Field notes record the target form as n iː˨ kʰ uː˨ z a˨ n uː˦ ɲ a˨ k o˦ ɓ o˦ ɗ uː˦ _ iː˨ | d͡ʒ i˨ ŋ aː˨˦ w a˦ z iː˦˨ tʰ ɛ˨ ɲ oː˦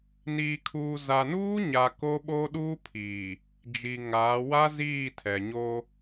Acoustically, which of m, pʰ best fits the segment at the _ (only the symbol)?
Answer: pʰ